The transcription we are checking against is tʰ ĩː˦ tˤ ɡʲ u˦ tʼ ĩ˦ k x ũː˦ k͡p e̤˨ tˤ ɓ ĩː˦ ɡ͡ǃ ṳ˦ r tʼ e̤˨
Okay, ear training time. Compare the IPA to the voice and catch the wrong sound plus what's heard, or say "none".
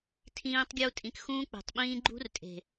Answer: none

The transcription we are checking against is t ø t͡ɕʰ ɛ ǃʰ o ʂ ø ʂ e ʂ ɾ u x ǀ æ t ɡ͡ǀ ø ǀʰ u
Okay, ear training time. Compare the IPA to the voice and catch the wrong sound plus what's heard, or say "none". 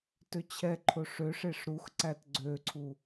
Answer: none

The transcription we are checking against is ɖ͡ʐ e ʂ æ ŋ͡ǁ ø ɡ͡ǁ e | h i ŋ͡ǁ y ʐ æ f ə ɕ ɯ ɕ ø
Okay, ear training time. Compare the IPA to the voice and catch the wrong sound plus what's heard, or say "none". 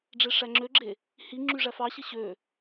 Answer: ə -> ɑ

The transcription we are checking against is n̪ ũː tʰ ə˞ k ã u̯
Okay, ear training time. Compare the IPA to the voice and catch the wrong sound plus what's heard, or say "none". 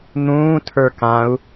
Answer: none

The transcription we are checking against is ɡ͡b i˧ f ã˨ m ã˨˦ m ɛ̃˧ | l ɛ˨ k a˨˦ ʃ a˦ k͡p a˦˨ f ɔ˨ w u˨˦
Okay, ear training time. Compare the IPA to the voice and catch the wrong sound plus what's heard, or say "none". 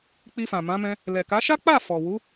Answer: ɡ͡b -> k͡p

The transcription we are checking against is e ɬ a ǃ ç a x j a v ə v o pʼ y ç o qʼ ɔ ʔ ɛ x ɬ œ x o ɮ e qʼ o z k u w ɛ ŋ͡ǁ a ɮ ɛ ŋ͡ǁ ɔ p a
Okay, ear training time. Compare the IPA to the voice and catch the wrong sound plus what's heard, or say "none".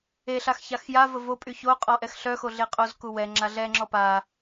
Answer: ǃ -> x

